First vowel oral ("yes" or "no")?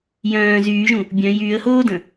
no